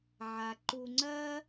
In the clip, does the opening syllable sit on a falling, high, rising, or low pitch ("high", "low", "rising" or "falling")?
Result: low